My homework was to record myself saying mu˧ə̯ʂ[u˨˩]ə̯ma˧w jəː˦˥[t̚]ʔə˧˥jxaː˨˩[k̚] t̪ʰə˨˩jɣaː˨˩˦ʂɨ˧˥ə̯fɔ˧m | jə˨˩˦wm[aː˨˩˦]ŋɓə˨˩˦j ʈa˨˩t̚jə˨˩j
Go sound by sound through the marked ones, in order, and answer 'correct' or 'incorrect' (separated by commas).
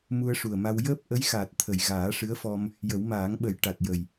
correct, incorrect, incorrect, correct